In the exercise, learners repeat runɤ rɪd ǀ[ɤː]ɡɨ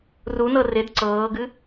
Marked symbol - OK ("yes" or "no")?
yes